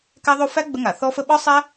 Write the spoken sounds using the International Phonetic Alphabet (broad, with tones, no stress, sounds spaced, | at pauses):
k æ˥ ðˤ o˥ f æ˥ ɡ͡b ə˥ ŋ a˧˩˧ θ ɔ˥ f ə˥ ɓ ɒ˥ sˤ æ˥